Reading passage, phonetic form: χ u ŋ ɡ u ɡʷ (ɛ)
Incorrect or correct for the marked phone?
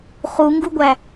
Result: incorrect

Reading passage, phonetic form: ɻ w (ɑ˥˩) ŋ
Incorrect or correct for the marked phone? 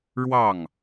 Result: correct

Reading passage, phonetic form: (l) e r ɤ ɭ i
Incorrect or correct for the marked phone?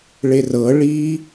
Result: incorrect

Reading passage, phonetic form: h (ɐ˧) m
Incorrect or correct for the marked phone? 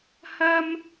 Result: incorrect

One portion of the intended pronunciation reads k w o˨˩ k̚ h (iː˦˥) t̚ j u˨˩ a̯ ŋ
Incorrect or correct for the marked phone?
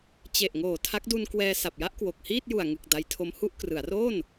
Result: incorrect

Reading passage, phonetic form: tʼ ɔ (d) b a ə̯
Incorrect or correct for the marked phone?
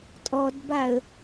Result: correct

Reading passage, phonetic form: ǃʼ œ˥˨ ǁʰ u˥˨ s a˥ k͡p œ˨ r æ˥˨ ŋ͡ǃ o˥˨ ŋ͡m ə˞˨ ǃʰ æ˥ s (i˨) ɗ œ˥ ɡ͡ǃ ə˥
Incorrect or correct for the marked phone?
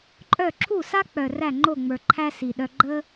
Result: correct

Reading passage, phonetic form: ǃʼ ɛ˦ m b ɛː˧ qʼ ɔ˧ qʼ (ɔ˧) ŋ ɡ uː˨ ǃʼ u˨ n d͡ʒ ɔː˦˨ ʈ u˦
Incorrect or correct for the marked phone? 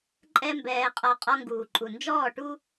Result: correct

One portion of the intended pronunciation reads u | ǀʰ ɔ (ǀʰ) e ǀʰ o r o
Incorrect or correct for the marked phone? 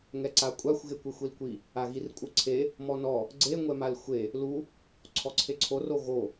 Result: correct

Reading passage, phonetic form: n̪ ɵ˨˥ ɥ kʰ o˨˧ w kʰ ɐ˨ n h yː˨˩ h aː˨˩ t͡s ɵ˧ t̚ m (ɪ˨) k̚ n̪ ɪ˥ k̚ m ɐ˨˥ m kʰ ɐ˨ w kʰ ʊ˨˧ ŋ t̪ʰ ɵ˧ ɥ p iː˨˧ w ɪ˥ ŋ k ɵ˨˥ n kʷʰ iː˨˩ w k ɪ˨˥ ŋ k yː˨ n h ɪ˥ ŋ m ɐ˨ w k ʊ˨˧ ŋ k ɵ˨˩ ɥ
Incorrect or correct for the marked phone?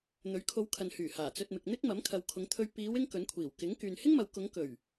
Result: correct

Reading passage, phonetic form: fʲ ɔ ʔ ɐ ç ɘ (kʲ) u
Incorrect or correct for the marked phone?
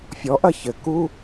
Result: incorrect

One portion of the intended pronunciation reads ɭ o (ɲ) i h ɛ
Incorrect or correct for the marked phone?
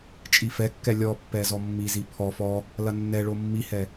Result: incorrect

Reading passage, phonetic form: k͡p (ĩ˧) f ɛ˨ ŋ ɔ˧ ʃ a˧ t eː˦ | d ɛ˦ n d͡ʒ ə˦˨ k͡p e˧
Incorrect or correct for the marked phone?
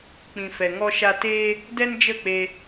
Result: incorrect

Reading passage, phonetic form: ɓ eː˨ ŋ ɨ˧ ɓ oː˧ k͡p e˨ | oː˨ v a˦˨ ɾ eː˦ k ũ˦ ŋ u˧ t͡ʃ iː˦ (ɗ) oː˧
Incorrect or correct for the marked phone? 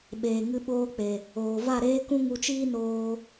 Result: incorrect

